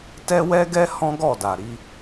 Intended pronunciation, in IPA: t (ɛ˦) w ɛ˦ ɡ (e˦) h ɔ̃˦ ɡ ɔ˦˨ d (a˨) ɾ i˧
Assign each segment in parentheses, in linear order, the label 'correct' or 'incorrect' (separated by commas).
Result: correct, incorrect, correct